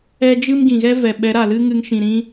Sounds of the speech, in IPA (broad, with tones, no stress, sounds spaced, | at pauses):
ɛ˦ d͡ʒ ɨ˦ m ɡ ĩ˨ ɣ ɛ˦ v ɛ˨ ɓ ɛ˨˦ ɾ a˨ l ɨ˦ ŋ ɨ˧ ŋ ʃ ĩ˨ ɾ ĩ˦